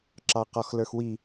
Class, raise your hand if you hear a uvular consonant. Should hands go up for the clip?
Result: yes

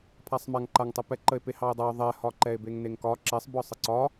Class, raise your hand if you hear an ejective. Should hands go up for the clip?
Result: no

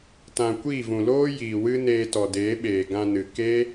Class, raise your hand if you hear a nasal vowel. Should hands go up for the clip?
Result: yes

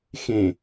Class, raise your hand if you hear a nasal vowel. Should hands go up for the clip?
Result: yes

